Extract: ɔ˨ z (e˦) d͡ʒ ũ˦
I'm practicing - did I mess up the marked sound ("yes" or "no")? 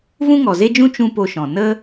no